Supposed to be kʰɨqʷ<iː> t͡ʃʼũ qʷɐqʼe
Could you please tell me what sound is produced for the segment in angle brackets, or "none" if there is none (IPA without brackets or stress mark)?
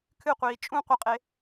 iː